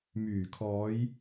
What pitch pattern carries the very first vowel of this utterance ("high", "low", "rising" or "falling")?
low